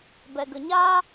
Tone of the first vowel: low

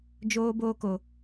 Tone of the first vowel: high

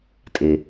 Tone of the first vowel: low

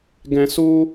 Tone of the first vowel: high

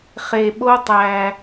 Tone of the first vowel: low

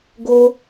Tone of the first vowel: high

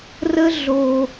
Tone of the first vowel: high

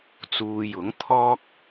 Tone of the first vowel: low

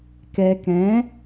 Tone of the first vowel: low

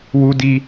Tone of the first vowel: high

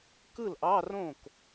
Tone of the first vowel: falling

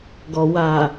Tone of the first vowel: low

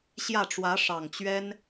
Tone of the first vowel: falling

